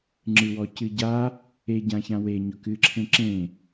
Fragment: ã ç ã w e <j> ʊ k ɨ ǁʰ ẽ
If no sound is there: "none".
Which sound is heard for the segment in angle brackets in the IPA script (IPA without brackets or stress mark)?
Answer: ɲ